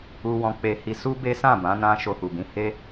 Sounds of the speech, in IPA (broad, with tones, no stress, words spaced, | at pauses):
u˧wɔ̃˧k͡pe˧hi˧ su˦be˦sã˦˨ bã˨˦nã˧ ʃo˧hu˨bĩ˨˦ he˧